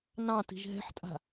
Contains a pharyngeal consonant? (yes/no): yes